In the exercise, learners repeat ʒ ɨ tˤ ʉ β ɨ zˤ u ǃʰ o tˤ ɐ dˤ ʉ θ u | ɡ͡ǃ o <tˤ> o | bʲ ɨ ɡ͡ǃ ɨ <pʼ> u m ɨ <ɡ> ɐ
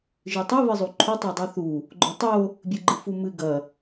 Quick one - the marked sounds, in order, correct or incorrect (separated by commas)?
correct, incorrect, correct